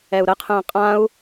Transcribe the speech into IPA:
ɛ u̯ ɾ ə qʰ ə̃ː qʼ ã u̯

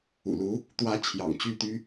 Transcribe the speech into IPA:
ṵ˨˩ l u˧˥ | t̪ w ä˧˥ t͡ɕʰ j ɑ̰˨˩ ŋ t͡ɕ y˥˩ t̪ y˥

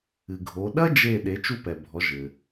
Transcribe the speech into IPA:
ɨ˩ ɡʱ o˩˧ ɗ ɐ˥ d͡ʒ e˧˩ ɗ e˩˧ t͡ʃ u˧ p ɛ˩ bʱ ɔ˩˧ ʒ ɘ˩

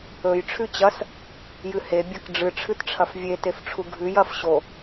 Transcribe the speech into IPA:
ɵ j ʈ͡ʂʰ ʉ t͡ɕ ɐ s | j ɨ h e bʲ ɐ k ɖ͡ʐ ɨ ʈ͡ʂʰ ɨ t ʈ͡ʂʰ ɐ f vʲ e t e f ʈ͡ʂʰ u ɡʱ ʉ j ɐ f ɕ o

